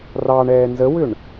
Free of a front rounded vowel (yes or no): no